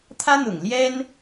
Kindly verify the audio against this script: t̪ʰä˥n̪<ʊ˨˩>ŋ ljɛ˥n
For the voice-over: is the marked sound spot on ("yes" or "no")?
yes